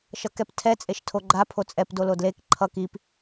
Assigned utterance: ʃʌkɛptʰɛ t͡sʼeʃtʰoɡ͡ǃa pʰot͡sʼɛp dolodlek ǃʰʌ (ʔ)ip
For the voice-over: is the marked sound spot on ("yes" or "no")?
no